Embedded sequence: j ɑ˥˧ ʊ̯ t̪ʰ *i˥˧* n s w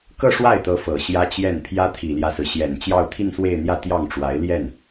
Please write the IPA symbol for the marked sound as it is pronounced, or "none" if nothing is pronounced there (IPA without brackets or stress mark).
i˥˧